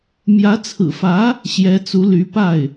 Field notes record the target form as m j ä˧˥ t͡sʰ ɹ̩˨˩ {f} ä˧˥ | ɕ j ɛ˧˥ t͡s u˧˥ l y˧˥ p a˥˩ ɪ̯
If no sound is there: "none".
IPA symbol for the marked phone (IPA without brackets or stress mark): f